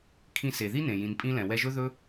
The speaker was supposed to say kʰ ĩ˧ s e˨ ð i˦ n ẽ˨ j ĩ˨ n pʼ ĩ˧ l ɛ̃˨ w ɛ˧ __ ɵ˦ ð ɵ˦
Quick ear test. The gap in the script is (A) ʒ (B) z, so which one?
A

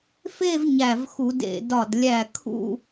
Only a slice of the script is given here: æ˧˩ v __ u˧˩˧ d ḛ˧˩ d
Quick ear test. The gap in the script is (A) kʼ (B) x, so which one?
B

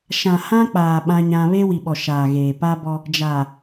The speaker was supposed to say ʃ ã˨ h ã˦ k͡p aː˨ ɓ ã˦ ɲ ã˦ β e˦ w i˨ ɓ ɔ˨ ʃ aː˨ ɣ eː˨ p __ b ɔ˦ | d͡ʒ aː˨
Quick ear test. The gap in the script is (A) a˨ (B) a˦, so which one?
B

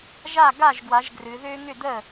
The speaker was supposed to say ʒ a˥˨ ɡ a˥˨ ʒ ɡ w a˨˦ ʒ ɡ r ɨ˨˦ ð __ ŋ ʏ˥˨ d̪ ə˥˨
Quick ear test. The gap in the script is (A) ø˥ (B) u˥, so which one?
A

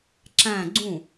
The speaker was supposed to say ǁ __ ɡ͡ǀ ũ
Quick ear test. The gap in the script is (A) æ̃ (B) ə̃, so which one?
A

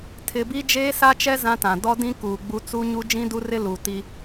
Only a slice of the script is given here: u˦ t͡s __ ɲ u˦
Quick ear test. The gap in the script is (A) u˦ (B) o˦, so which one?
A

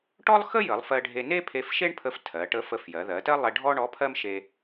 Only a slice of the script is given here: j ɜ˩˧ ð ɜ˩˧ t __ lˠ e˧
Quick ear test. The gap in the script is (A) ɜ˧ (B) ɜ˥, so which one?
B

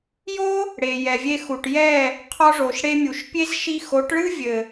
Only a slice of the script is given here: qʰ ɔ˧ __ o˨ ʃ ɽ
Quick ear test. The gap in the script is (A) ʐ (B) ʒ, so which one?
A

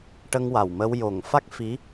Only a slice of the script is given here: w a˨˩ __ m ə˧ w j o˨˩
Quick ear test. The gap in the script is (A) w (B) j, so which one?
A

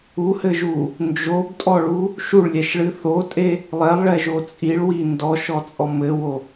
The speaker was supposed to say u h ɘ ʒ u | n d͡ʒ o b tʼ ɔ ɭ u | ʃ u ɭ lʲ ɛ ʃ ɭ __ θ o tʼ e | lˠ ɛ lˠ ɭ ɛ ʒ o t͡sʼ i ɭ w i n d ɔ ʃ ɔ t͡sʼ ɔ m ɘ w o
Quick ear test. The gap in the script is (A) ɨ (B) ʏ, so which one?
A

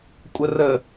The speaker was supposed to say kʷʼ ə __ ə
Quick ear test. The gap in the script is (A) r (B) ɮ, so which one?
A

